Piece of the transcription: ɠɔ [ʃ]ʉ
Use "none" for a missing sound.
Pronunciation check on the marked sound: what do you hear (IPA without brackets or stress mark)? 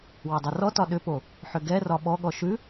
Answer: ʃ